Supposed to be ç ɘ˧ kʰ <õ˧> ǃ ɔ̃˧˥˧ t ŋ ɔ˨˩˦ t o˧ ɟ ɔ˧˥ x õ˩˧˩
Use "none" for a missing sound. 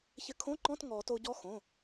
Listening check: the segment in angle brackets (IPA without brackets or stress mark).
õ˧˥˧